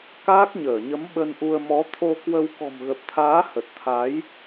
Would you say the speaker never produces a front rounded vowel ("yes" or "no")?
yes